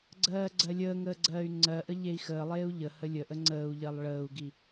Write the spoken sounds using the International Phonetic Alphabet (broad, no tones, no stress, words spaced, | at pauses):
ɡ͡ǀɜːɡ͡ǀɜlʲəːŋəː ɡ͡ǀɜːy̯ŋ͡ǀɜʔə ʎei̯xəːlˠeːu̯ ʎəhə lʲəʔə ŋ͡ǀəːu̯ʎɜlˠ ɭəːu̯ɡi